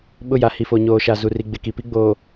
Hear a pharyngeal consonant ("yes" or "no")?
no